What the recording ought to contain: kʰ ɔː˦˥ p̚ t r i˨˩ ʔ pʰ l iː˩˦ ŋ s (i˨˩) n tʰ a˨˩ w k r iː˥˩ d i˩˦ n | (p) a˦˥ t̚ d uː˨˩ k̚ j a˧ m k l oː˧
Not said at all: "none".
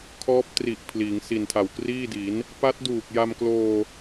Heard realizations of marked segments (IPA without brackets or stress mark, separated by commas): i˨˩, p